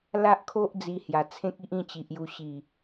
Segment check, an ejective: absent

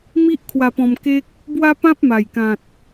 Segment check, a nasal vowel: present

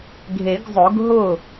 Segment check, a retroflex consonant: absent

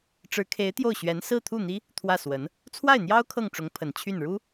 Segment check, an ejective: absent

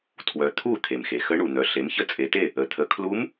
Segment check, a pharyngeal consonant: absent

